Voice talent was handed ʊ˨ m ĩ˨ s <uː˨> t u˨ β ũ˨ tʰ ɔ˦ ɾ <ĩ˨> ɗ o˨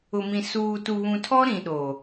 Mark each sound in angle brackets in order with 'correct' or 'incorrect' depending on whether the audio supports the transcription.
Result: correct, correct

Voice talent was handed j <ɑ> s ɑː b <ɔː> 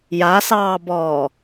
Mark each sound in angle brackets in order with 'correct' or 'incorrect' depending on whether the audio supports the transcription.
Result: incorrect, correct

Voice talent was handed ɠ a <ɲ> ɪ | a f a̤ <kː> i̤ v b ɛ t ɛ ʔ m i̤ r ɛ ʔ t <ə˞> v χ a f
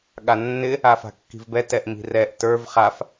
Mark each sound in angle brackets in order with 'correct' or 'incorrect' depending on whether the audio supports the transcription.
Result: incorrect, correct, correct

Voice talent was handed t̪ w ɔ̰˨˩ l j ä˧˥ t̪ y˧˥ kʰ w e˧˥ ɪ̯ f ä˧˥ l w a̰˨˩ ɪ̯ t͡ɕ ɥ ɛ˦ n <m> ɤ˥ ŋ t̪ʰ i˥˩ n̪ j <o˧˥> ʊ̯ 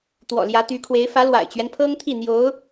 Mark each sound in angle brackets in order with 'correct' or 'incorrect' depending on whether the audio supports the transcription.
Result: incorrect, correct

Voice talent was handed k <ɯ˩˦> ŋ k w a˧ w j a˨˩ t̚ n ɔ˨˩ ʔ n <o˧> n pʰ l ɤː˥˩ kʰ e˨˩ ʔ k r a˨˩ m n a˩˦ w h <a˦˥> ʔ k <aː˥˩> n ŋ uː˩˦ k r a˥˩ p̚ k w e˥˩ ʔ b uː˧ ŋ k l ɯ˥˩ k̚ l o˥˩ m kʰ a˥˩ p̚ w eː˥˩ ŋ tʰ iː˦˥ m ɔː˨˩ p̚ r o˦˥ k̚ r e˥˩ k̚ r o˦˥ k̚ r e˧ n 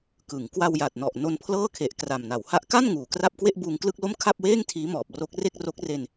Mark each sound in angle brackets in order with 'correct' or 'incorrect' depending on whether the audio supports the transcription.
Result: correct, correct, correct, incorrect

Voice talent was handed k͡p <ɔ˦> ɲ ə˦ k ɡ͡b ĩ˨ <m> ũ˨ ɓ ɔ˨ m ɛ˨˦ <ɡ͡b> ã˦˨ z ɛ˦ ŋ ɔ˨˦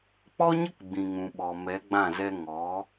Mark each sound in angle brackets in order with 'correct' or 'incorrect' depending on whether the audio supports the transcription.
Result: correct, incorrect, correct

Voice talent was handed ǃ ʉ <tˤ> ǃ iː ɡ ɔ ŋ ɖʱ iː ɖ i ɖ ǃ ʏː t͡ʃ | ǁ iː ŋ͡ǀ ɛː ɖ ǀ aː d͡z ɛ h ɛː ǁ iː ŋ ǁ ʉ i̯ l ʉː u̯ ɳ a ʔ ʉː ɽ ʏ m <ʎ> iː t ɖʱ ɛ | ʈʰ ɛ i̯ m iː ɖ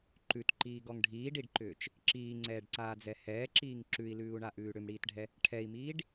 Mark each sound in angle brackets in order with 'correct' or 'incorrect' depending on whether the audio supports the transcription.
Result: incorrect, incorrect

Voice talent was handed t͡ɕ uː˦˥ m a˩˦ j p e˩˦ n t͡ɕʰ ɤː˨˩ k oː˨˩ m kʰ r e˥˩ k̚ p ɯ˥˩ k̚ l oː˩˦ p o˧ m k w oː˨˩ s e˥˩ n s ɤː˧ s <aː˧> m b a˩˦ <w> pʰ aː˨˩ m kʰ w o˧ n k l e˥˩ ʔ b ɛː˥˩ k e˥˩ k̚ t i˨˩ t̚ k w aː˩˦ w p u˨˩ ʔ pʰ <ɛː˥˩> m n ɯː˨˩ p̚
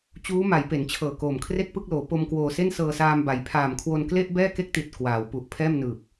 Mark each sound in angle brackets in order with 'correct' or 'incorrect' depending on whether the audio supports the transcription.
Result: correct, incorrect, correct

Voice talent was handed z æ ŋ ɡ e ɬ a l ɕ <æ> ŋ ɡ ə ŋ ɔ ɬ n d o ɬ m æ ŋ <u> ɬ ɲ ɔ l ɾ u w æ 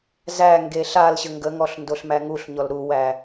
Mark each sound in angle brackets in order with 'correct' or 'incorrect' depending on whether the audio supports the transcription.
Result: incorrect, correct

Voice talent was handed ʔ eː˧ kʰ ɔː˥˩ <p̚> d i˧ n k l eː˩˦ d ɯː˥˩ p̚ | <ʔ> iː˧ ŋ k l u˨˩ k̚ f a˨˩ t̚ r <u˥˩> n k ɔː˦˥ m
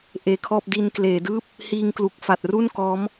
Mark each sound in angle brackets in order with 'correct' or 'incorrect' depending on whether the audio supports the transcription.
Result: correct, incorrect, correct

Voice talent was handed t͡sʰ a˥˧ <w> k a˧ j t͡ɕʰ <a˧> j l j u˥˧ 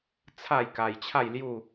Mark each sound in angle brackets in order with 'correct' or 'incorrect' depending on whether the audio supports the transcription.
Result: incorrect, incorrect

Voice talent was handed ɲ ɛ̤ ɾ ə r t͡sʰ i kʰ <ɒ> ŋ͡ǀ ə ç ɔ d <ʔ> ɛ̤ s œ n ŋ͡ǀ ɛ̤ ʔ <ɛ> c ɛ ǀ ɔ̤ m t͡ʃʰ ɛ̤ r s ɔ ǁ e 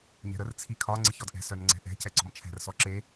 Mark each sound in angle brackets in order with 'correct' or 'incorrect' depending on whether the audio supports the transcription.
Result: correct, correct, incorrect

